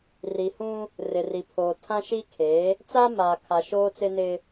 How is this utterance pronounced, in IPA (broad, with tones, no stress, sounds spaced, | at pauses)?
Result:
r i˨ h ũ˦ | r ɪ˨ r i˨ pʰ oː˨ tʰ ã˦ ʃ i˦ kʰ eː˨˦ | t͡s a˦ m aː˨ kʰ a˨ ʃ oː˦ t͡s ɪ˦ n ɪ˦